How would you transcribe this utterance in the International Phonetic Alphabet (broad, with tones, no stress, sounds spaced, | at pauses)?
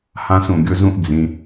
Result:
h ã˦ s ũ˨ ɡʲ ʊ˦ z ũ˦ ʔ d͡z ĩ˨